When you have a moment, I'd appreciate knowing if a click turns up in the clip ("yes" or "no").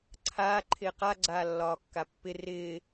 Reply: yes